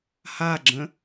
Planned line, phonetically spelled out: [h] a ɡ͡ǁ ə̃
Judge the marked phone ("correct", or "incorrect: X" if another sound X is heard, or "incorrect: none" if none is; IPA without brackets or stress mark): correct